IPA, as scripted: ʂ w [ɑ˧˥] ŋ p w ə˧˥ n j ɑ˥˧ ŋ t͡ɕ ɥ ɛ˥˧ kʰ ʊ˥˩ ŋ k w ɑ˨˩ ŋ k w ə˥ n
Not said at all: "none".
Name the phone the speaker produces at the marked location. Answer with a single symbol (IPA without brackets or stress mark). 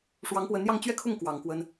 ɑ˧˥